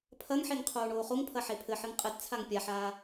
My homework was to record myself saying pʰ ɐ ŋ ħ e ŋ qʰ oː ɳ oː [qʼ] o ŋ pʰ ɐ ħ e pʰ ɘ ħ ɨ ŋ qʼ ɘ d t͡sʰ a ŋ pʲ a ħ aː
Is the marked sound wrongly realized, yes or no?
yes